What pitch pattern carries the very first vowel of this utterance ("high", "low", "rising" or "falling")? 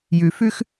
low